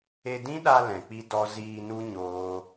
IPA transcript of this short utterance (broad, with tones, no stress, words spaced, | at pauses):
e˧dĩ˦ɗa˧ lɛ̃˨k͡pi˦ dɔ˦ ziː˧nu˦ ɲoː˦